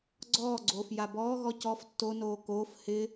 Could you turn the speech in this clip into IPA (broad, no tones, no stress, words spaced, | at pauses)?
ɡ͡ǀɔːɡ͡ǀoːf jabɔːɣɔ cɔf tːonoː koːf hɪ